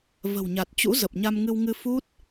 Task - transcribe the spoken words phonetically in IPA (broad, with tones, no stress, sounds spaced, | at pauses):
v ə̤˨˩ w ɲ a˨˩ t̚ t͡ɕ ṵ˧˥ z ə˨˩ p̚ ɲ a˧ m ŋ ɨ˧ w ŋ ɨ˧ f u˦˥ t̚